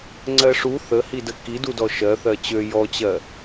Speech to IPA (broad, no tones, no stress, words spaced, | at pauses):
ŋ͡ǀɜʂu θəhidə kidudɔ ʃɜθɜ t͡ɕø jɔt͡ɕɜ